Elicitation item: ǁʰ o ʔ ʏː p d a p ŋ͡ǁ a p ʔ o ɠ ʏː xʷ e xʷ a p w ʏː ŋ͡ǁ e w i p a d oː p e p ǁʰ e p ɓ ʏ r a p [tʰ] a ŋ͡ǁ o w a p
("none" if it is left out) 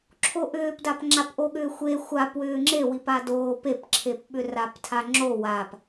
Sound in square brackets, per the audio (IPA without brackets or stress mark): tʰ